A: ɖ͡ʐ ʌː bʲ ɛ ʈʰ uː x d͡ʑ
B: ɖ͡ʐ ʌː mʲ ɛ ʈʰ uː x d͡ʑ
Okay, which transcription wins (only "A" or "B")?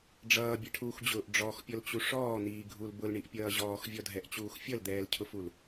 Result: A